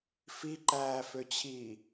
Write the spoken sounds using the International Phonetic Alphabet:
f i ǃ æː f ø t͡ɕʰ i

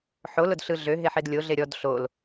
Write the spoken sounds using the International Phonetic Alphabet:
ħ o l ʊ d ɬ ɯ ɮ ø ɦ e ħ e d lʲ o ɮ e ɾʲ ɔ d ɬ o l

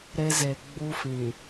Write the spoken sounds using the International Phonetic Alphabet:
ɾ e˦ z e˨ ɡ͡b uː˦ f ĩ˨

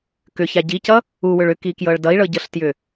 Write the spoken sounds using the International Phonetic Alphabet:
k ʏ ç a ɟ i c ʌ | u w ʏ ɭ ʏ k i k j ɤ ɭ d ʌ i̯ ɭ ɤ ɟ ɤ ɬ t j ʏ

